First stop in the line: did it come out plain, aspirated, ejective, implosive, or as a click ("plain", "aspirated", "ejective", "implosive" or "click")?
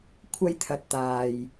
aspirated